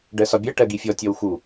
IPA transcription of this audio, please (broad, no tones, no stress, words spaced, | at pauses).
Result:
ɖɜsɒbʲɜ ʈɜɡifʲɔ tʲɔwxu